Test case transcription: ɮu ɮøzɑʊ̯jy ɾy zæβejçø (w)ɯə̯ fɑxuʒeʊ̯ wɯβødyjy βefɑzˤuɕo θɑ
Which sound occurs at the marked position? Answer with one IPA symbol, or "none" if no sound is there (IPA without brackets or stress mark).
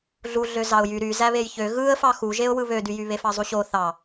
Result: ɣ